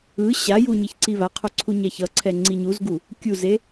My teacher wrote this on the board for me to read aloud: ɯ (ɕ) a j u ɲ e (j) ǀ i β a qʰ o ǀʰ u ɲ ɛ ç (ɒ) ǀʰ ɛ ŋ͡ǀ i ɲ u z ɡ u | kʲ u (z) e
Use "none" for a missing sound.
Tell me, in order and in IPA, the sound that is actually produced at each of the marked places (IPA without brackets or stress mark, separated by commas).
ɕ, ç, ʌ, z